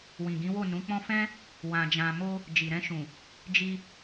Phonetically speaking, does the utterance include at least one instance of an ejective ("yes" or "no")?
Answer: no